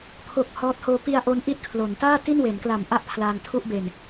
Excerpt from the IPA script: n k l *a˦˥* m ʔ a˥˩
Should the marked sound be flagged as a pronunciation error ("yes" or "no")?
yes